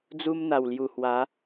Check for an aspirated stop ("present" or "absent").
absent